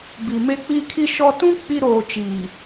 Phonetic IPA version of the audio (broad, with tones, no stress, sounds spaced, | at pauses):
b i˨ m e˦ k͡p iː˦ kʰ i˦ ʃ ɔ˦ t ũ˦ k͡p i˦ ɾ oː˨ t͡ʃ iː˨